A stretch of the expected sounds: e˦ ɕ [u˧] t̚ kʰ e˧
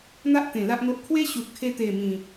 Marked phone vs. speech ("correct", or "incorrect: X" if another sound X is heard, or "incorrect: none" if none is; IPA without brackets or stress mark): incorrect: u˨